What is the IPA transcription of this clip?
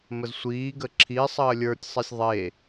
məzsʷiːɡə ǁʰisˤəː lʲə˞tʲsˤisʲ ðˤe

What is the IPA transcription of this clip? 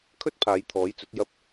kʰɵ˥t̚pʰaː˨˧jt̪ʰɔː˨˥jt͡sɵ˨˥t̚ jɐ˥p̚

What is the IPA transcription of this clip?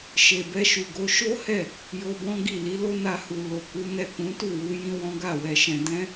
ʃe˨bɛ˧ʃu˨ɡo˨˦ ʃo˦hɛ˦˨ | jo˧bɔ̃˦ɡi˦˨ li˨˦lo˦na˧hu˨ lo˨ku˨˦nɛ˦˨ kũ˨˦tu˦˨wu˧ jĩ˦wɔ̃˦ɡa˦˨ wɛ˧ʃɛ̃˧ dɛ̃˦

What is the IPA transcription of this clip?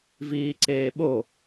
viːǀeːɓo

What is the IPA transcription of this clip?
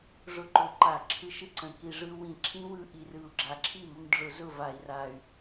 ʐʊ˦˥ǃʊ˧˩˧ǃa˧˩˧ ǁʰɯ˧ʃɯ˦˥ǀə̃˨˩ ki˨˩ʐɯ˧ wĩ˧˩˧ǁʰĩ˦˥wɯ˧ ʔi˨˩rɯ˨˩u̯ɡ͡ǁa˨˩ ǁʰi˥˩mʊ˧mɖ͡ʐʊ˧˩˧ zʊ˥˩ va˧˩˧i̯ra˨˩y̯

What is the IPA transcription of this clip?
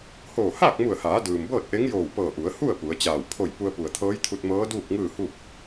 hoː˧˩haː˥˨k̚mu˧˩ə̯haː˩˧ dɯː˩mbɤː˥˨t̚ʔe˧˥ŋjoː˧˩w pɤː˧˩ʔu˩˧ə̯hu˥˨ə̯ pu˩˧ə̯t͡ɕaː˧˩w pʰo˧˩j pu˧ə̯pu˩ə̯t̪ʰɤː˧˥jt̪ʰu˧t̚ mɤː˧˥duː˥˨k̚ŋɯː˥˨hu˥˨p̚

